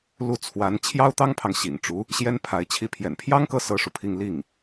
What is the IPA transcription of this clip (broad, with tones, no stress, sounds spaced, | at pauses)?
l u˥˩ t͡sʰ w a˧˥ n t͡ɕʰ j ɑ˥ ʊ̯ t̪ ɑ˥ ŋ pʰ ɑ˨ ŋ ɕ ḭ˨˩ ŋ ʈ͡ʂ u˧˥ | ɕ j ɛ˥ n pʰ a˧˥ ɪ̯ t͡ɕʰ i˥˩ pʰ j ɛ̰˨˩ n pʰ j ɑ˥ ŋ k ɤ˥˩ s ɤ˥ ʂ u˨ pʰ i˥˧ ŋ l i˥˩ ŋ